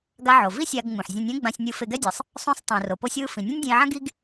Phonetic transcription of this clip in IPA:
ɡ a˧ ʕ o˩ v i˥ sʲ a˧ ɡ ŋ͡m ũ˩ ħ zʲ õ˧ nʲ ɛ̃˥ ɡ͡b ã˧ sʲ nʲ ɯ˧ f e˧ ɡ ɛ˥ dʲ ɯ˩ sˤ | sˤ ũ˧ sˤ tˤ ũ˩ r o˩ p o˥ sʲ w ɯ˥ f ĩ˩ nʲ ɛ̃˥ nʲ dʲ ɛ̃˧ i̯ ʕ ã˥ ɡ i˥ ɡ

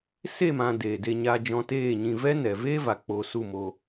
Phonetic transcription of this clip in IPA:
s e˦˨ m ã˧ d eː˨ d e˧ ɲ a˧ d͡ʒ ɔ̃˧ t eː˦˨ ɲ ĩ˧ v ɛ˦ n ɛ˨ v eː˦ v a˨ k͡p o˧ s u˦˨ m o˧

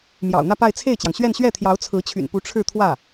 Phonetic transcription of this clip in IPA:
m j ɑ̰˨˩ ʊ̯ n̪ ä˥˧ p a˥˧ ɪ̯ t͡sʰ e˥˩ ɪ̯ t͡ɕ j ɑ˩ ŋ ɕ ɥ ɛ˥˧ n ɕ ɥ ɛ˥˩ t̪ʰ j ɑ˧˥ ʊ̯ t͡sʰ ɹ̩˧˥ t͡ɕʰ y̰˨˩ n p u˧˥ ʈ͡ʂʰ ɻ̩˥˧ t̪ʰ w ä˥˩

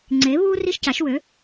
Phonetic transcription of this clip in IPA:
ŋ͡ǀ e˨˥ β u˥ r i˥ ʃ c a˨˥ ʃ w ø˨˥

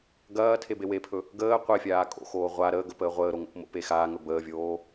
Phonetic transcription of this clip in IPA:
ɡ ɐː tʰ e b e w e pʰ ɵ | ɡ əː qʷ e fʲ aː kʼ o̰ x oː ʁʷ a ɾ əː ɡ ə p əː ʁʷ əː ɾ o ŋ o̰ p m o̰ p e x aː ŋ ɵ b əː vʲ oː

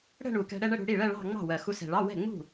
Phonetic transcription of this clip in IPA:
ɽ ə̤˥˧ ɳ u˨˩ k ɛ̤˧ ɽ ɛ˥˧ ɳ ə˥˧ ɽ ṳ˧ ɽ i˥˩ ɭ ɜ˥˧ ɭ ɑ̤˥˧ ŋ͡m ɑ̤˥˩ w ɜ˨˩ x u˧ s ɛ̤˨˩ ɭ ɑ˧˥˧ w ɛ̤˥˩ ŋ͡m ṳ˥˩

